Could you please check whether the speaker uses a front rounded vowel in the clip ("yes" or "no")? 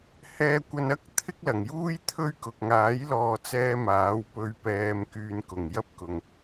yes